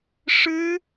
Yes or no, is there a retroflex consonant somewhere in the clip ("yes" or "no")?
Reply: yes